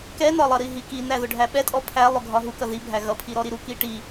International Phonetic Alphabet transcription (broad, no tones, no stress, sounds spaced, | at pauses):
k ɛ n ɒ lˠ ʌ ɾ i ɦ i k i n æ ð ʊ ɖʱ æ ɓ ɛ tʼ ɔ pʰ æ lˠ ʊ ɡʱ ɒ ɦ u k ʌ ð i bʱ æ ɣ ʌ pʰ i ɾ ɔ ɾ i ɾ u k i ʈ i